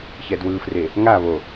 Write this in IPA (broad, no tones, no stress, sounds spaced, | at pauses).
ç ɛ d w ɯ f r e | ŋ a β o